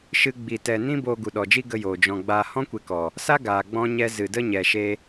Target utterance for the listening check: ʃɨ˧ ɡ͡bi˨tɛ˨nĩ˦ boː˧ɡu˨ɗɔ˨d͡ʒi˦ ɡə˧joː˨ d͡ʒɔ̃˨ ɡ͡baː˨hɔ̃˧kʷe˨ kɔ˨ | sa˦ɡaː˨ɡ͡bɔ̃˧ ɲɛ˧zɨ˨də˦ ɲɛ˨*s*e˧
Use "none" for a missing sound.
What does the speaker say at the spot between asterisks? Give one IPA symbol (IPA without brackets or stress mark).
ʃ